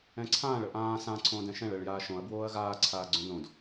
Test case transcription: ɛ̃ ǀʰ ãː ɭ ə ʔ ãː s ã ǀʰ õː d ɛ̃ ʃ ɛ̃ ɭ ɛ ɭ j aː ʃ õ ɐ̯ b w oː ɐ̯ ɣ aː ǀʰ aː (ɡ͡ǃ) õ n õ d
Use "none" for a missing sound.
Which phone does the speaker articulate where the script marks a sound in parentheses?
ɡ͡ǀ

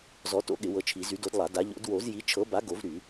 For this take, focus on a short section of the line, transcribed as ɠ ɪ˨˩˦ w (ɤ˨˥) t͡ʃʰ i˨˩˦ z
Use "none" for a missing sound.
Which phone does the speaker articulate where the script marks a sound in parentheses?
ɤ˨˥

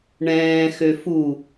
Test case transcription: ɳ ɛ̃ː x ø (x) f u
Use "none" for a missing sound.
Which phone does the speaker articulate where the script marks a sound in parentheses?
none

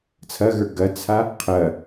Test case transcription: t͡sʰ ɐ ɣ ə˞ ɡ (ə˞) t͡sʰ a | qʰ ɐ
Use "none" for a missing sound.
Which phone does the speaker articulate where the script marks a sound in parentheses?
ɐ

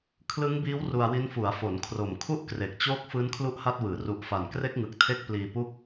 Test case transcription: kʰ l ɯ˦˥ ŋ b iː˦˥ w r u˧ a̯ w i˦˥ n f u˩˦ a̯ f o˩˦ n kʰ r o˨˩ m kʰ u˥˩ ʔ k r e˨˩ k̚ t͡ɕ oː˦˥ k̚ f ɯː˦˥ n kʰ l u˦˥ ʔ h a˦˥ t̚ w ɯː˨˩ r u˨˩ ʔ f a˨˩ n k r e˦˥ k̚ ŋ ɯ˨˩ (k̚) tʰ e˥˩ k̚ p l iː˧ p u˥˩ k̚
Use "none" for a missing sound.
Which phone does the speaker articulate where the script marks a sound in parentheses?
k̚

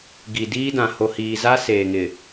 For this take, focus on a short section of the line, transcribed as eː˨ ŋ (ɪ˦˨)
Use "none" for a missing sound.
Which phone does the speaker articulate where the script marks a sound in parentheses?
ɪ˨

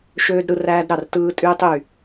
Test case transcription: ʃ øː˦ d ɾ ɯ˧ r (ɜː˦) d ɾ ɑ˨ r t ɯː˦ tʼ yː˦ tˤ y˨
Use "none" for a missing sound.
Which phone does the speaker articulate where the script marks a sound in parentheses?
æː˦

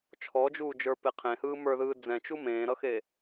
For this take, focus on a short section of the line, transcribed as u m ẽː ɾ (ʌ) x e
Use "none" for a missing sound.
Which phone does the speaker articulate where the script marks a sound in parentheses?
ʌ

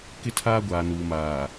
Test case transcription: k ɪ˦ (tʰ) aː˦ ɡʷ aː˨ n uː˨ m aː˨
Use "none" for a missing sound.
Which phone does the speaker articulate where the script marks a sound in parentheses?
tʰ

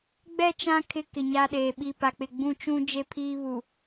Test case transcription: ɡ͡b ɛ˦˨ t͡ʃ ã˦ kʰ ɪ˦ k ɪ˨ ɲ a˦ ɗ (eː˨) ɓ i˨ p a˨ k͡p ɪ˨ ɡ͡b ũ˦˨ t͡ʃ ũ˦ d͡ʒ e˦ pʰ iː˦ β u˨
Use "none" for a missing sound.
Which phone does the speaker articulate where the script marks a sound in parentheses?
eː˨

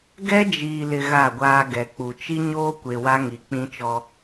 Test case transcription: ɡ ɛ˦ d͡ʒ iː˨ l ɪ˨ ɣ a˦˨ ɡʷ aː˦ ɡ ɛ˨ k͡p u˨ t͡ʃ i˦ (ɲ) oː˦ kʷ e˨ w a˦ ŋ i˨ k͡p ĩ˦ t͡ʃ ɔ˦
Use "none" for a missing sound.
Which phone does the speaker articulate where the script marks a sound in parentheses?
ɲ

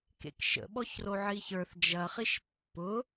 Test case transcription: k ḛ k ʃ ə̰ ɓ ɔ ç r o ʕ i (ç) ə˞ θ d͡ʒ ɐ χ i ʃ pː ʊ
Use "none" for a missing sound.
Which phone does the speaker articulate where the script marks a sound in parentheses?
ç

